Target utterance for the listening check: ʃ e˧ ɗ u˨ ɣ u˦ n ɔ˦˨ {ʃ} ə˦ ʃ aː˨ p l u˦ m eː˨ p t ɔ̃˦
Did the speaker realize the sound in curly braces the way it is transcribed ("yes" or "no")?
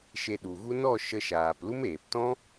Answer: yes